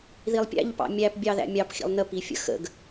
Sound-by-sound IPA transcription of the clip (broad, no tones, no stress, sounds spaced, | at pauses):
ð i lˠ pʲ æ̰ ʎ p ɑ̰ mʲ æ p bʲ ɑ ð æ̰ mʲ ɑ p x ḭ lˠ n ə p i fʲ ə̰ x ə̰ ɡ